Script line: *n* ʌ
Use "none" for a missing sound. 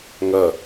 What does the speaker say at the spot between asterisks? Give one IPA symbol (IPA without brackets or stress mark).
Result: ŋ